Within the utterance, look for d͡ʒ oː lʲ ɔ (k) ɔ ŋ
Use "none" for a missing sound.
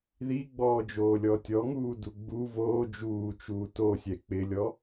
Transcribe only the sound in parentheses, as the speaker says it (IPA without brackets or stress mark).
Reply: tʲ